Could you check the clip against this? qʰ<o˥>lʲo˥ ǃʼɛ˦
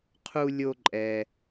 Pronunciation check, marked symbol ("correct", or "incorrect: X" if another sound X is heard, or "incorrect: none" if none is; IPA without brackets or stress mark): incorrect: u˥